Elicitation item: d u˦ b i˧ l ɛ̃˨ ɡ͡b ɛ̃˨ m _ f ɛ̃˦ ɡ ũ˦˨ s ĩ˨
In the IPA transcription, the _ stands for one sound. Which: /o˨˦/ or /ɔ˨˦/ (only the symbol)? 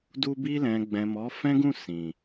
ɔ˨˦